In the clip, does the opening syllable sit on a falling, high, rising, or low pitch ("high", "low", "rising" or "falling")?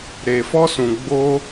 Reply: low